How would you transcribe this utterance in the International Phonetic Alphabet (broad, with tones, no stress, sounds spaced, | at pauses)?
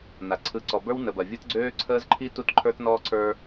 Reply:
n a˨ ǀʰ ɯ˨ ǀ ɔ˨ b ə˞˦ w n ə˨ b ɐ˨ vʲ ɯ˦ t ɡ͡ǀ øː˦ ǀʰ əː˦ z ǃʰ i˦ t u˦ t ǃʰ ə˞˦ t n ɔː˦ ǀʰ ə˞˦